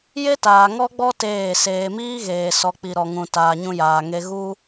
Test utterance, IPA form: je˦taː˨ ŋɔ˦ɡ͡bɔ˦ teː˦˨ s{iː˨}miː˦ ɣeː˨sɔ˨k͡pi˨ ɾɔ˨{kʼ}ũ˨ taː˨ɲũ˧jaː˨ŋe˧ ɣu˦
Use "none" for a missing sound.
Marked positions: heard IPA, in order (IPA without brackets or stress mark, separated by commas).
eː˨, ŋ